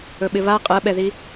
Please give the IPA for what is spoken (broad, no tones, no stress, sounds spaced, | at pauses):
ɵ ɓ ɪ β a qʼ ɜ ɓ ɛ ð i